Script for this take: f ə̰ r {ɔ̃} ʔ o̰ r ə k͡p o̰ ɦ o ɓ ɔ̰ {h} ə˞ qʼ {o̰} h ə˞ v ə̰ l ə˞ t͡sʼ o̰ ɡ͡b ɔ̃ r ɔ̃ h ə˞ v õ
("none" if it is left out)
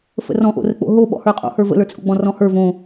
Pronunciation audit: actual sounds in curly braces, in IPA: ɔ̃, h, o̰

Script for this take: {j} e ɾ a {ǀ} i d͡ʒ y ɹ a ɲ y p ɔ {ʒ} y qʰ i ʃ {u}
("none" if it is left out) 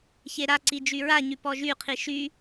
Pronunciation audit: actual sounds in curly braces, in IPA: ç, ǀ, ʒ, y

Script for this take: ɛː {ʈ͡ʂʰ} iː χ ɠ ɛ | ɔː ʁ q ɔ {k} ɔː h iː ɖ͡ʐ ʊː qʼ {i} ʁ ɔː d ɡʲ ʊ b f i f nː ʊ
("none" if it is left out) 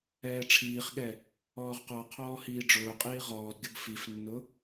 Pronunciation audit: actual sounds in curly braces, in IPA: ʈ͡ʂʰ, qʰ, iː

